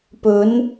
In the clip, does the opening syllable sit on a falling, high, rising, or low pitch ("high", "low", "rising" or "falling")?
rising